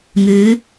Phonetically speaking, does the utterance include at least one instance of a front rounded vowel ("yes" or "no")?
yes